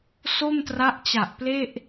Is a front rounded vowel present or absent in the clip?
absent